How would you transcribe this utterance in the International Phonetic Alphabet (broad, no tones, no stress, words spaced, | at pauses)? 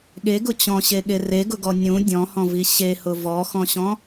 ɠeɡʊ t͡ɕɔ̃ɕeɠe reɡʊɡɔ nʲũ dʲɔ̃hɔ̃vi ɕehʊ vɔxɔ̃ɕɔ̃